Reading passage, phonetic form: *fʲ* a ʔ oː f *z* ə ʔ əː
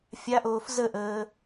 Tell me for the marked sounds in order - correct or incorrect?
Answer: correct, correct

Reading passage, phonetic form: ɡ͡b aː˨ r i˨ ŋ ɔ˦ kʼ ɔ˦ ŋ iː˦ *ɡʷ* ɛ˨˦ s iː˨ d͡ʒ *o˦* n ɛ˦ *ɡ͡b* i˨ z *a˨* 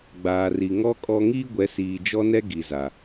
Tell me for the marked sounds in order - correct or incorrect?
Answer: correct, incorrect: ɔ˦, incorrect: ɡ, correct

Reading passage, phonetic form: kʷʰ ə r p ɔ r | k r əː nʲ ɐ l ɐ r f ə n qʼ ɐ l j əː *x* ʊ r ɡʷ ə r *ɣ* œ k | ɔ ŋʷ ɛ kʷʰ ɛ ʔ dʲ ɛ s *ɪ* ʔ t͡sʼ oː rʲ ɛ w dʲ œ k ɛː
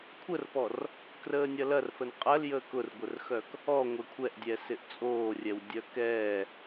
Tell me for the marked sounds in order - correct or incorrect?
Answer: incorrect: k, incorrect: x, correct

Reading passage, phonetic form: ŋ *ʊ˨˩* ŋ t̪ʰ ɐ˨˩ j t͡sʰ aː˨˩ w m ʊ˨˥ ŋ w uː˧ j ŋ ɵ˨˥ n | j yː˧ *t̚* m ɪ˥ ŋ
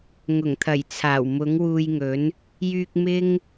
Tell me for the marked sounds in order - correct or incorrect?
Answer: correct, incorrect: k̚

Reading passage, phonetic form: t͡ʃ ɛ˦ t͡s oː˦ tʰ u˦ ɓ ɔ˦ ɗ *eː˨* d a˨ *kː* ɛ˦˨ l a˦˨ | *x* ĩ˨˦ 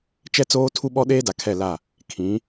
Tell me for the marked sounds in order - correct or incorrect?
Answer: incorrect: eː˦, incorrect: kʰ, incorrect: kʰ

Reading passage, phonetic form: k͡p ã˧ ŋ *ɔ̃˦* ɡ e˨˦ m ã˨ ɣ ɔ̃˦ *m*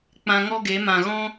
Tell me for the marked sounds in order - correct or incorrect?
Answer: incorrect: ɔ˦, incorrect: none

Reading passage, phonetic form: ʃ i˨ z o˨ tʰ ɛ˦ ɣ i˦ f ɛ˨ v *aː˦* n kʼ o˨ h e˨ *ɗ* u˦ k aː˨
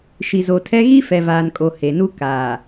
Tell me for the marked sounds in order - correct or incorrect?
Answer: incorrect: aː˨, incorrect: n

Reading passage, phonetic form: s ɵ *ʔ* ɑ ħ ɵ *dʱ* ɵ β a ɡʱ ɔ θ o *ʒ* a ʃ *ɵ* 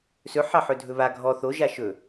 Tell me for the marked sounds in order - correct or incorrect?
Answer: incorrect: ħ, correct, correct, correct

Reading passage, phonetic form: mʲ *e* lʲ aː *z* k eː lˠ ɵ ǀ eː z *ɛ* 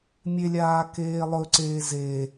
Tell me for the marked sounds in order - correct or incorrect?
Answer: correct, incorrect: none, incorrect: e

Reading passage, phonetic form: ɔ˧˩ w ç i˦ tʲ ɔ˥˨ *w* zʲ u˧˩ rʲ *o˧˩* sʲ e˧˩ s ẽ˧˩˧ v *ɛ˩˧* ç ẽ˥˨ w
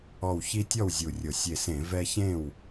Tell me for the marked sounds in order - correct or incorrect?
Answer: correct, correct, incorrect: ɛ˦

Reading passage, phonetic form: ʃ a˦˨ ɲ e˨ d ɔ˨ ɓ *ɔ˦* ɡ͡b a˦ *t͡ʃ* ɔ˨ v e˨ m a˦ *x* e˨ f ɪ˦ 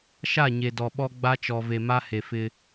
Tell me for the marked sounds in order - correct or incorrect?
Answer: correct, correct, incorrect: h

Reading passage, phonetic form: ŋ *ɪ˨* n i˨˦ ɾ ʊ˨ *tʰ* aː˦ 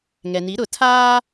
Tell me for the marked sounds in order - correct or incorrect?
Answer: incorrect: ɛ˨, correct

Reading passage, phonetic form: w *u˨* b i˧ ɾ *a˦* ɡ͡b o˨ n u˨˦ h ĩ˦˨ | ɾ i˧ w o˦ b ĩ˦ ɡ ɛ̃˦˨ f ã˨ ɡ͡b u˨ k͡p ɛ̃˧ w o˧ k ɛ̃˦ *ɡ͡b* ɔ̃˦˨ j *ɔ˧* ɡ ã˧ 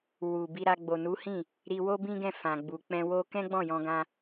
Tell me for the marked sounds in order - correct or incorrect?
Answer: correct, incorrect: a˧, correct, incorrect: ɔ̃˧

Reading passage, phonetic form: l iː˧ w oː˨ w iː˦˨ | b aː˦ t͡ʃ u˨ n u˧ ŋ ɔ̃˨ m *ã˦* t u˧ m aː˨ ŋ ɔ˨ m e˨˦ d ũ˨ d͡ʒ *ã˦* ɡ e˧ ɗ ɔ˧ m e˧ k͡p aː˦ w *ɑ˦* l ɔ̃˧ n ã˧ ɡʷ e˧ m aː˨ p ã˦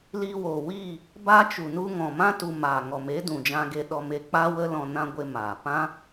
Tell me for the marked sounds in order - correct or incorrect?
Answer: correct, incorrect: ã˧, incorrect: ə˦

